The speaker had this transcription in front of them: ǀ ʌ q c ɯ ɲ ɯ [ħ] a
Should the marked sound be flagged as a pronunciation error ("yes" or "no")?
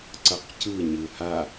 yes